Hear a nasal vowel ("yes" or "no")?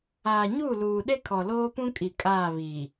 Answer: yes